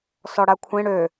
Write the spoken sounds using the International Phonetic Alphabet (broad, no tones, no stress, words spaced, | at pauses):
sɔɽakʷʰẽ ɽø